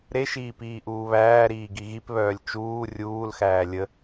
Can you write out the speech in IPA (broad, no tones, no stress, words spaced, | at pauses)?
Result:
ɾeʃiː piːʔuːβæːɾiː ɡiɣipβœːlʲ t͡ʃuː rʲuːlxæː lʲə